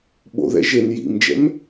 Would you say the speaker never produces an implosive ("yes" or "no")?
no